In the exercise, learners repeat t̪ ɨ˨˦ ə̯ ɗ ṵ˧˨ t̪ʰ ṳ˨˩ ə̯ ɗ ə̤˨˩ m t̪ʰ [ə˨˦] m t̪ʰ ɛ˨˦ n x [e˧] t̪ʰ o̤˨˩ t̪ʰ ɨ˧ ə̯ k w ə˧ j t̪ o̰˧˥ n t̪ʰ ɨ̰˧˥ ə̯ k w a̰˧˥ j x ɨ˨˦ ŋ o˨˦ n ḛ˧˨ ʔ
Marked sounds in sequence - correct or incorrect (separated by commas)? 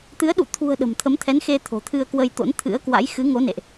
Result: correct, correct